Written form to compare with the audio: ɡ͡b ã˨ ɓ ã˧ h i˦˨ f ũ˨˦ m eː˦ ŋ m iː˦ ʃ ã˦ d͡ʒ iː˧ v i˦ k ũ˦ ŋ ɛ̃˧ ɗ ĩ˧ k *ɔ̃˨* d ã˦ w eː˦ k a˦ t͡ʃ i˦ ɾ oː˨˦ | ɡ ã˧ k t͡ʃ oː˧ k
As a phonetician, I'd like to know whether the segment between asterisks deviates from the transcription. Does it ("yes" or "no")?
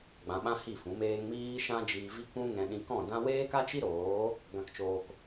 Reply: yes